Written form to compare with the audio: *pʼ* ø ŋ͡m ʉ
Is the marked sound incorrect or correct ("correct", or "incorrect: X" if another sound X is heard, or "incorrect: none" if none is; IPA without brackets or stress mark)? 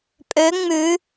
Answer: correct